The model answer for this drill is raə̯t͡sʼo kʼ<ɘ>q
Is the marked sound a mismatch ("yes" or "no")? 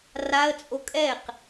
yes